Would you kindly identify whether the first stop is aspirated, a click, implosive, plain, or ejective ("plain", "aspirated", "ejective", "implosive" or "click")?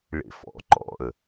click